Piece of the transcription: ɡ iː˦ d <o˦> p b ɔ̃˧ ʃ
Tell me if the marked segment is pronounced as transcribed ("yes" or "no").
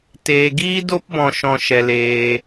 yes